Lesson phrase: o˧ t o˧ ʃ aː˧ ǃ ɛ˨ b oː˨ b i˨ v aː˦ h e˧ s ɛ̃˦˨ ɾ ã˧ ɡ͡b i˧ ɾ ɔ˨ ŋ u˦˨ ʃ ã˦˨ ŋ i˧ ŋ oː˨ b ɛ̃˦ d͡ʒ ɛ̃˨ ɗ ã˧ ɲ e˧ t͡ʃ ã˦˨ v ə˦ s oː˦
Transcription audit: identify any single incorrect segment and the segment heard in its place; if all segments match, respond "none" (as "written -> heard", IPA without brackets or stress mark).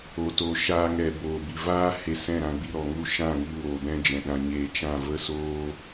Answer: ǃ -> ŋ